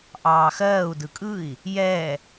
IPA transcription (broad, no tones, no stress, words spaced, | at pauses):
ʔɑːxɜːu̯ dɯkʼɯi̯ | jɛ